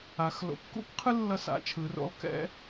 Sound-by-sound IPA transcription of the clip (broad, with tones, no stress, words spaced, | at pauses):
a˩˧x lo̰˩˧kːṵ˥kqʰɯ˥ lːʌ˥sa̰˧˥t͡ʃʰɯ˩˧ro̰˥lˠ kɛ̰˥